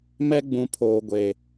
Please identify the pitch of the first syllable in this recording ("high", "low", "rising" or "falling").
high